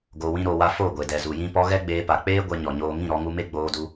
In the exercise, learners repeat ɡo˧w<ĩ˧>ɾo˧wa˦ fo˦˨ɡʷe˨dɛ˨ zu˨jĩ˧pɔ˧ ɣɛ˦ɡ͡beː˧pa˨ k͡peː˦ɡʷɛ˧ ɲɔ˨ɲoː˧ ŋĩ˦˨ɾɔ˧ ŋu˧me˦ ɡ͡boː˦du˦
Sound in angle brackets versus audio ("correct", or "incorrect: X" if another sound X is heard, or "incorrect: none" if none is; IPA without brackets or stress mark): incorrect: ĩ˦